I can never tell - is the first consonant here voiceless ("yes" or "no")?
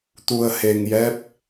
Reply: yes